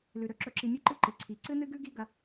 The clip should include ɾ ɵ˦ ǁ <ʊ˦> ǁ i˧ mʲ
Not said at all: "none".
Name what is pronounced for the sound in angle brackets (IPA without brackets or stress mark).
ɵ˦